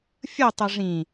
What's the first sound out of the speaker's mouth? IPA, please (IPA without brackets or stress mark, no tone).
fʲ